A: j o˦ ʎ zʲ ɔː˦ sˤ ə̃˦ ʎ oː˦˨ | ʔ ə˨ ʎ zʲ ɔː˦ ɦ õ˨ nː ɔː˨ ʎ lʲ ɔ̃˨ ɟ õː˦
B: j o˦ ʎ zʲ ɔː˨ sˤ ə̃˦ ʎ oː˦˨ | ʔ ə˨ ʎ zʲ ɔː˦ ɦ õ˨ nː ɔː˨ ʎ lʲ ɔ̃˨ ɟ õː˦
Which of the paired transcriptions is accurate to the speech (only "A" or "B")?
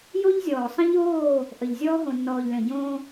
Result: B